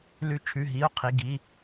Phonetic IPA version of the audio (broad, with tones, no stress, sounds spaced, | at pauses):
l ʉ˧˩ t͡ʃʰ ʉ˩˧˩ ɦ i˩˧˩ o̯ qʰ i˩˧˩ ɡ i˩˧˩